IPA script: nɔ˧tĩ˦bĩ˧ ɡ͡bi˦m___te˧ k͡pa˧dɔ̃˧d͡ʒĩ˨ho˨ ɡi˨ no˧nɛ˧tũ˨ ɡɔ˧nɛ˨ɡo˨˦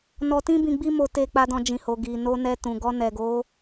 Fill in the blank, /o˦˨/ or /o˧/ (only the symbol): o˧